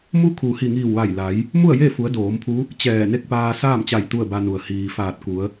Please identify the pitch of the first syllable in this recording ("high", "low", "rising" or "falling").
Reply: rising